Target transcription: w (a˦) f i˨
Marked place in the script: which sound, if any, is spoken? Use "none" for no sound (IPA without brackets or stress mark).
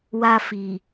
a˦